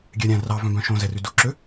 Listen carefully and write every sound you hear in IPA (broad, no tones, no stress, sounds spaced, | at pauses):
ɡʲ ɛ ɾʲ æ̃ r ɑ v œ̃ b œ̃ ʃ õ z ɛ r ʉ d u ǁ ø